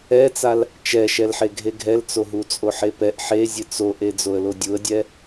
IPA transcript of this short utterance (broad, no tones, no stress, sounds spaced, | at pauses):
ɛ t͡s a l | t͡ʃ ɛ ʃ ɛ l ħ e ɡʱ e ɡʱ ɛ l t͡s o ɦ u t͡sʼ o ħ e p ɛ ʔ ħ e zʲ ɨ t͡s o ʔ e d͡z o ə̯ l o dʲ u ə̯ dʲ ɛ